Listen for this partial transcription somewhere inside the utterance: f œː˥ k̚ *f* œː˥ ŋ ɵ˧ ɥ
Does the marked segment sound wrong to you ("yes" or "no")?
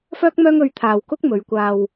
yes